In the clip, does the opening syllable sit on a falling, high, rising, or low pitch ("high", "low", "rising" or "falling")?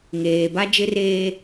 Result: low